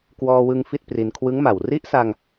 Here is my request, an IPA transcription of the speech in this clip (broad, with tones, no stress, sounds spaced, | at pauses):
k w ɔː˧ w ɯ˧ ŋ f i˥˩ t̚ p r i˧ n kʰ w ɯ˦˥ ŋ m a˨˩ w r i˦˥ ʔ s a˧ ŋ